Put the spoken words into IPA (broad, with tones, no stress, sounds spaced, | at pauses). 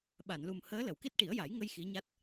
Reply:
ɓ a˨˩˨ n l u˨˩ m h əː˧˥ l ə˨˩˨ w k i˦˥ t̚ ʈ i˨˩˦ ə̯ j a˨˩˦ j ŋ ə˧ j x i˧˥ ɲ a˦˥ t̚